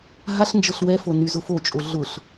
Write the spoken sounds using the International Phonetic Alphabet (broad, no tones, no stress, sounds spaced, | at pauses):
ɦ a ɬ n d͡ʒ ɤ ɬ w ɛ f o n y z ʊ f o t͡ʃʼ o ɮ ʊ ɬ